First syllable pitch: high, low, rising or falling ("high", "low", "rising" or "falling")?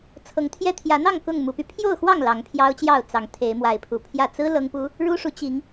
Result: rising